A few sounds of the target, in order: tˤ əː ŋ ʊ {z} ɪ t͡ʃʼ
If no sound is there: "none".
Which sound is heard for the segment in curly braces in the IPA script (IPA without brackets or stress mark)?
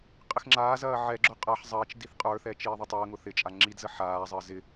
θ